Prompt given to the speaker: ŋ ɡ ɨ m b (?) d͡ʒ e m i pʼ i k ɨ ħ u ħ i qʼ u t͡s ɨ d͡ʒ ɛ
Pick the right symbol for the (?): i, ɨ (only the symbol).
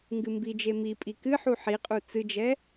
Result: i